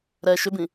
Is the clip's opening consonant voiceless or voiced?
voiced